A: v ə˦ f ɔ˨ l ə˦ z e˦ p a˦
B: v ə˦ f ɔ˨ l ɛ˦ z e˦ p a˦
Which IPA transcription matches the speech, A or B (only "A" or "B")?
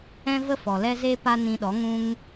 B